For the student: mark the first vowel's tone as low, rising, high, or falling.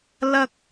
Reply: high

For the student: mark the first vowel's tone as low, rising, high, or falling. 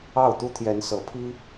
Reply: falling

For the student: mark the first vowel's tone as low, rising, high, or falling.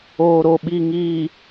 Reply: low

